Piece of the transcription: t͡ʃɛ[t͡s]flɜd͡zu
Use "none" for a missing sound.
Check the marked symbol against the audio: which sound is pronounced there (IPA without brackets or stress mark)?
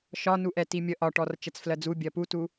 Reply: t͡s